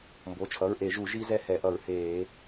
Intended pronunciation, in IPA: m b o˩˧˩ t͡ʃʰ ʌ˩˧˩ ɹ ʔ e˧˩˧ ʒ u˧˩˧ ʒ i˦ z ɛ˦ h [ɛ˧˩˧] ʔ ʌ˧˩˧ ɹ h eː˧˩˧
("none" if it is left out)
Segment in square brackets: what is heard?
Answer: ɛ˧˩˧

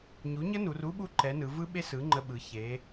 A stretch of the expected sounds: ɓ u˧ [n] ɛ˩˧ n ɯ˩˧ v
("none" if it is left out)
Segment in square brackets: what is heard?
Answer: ǃ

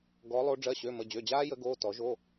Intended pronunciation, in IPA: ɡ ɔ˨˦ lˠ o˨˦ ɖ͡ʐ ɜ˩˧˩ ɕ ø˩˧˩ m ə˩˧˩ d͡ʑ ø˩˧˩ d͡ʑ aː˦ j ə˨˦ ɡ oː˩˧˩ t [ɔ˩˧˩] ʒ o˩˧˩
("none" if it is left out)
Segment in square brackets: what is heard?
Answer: ɔ˨˩˦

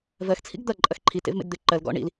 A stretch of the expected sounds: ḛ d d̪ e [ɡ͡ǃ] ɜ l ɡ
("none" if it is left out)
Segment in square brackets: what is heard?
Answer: ǃ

